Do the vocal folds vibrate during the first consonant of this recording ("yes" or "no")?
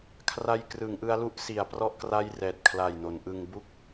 no